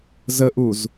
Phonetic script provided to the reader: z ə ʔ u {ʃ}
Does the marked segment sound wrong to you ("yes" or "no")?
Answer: yes